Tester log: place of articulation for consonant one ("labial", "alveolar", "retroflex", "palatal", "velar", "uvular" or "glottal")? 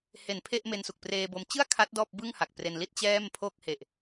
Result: glottal